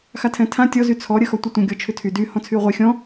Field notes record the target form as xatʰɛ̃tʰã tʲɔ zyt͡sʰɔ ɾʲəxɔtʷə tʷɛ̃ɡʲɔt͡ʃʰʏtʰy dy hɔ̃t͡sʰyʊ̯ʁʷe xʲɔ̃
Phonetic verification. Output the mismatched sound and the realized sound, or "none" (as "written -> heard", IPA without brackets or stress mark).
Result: none